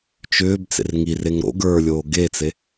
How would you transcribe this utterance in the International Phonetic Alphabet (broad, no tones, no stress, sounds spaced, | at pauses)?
t͡ʃ ʏː b t͡s ḛ r ŋ i r e ŋ ɾ o̰ ɡ ə˞ lʲ oː ɡ e t͡s e